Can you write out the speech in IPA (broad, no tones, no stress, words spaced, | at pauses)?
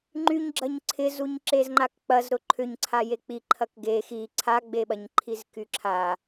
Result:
ŋ͡ǃyɲɡ͡ǁɐɲ ǀʰɪzuɲ ǁezŋ͡ǃakk͡pɐzɾʊ ǃʰʏɲǀʰa jek͡piǃʰɐk ɡe xi ǀʰaɡ͡beɓɐɲǃʰiz kyǁʰa